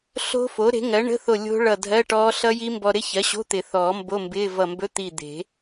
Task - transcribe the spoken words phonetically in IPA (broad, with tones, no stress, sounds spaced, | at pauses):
ɬ o̤˦˥ f o˩˥ ɾ e̤˩˥ ŋ ɜ˩˥ ɳ ə̤˧˥˧ θ o˧˩ lʲ o̤˦˥ ɭ ʌ˧˩ dʱ ɜ˧˥˧ ʈ ɔː˦˥ ɬ ʌ˦˥ j i˦˥ m b ɔ˧ ɾ ɪ˦˥ ç ɜ˩˥ ɕ o̤˧˥˧ t̪ ɪ˨˩˦ θ ɔː˨˩˦ m b o˧˥˧ m b ɪː˧˥˧ v ʌ˧˩ m b ɵ˧˥˧ t̪ i˧˩ d̪ e̤˨˩˦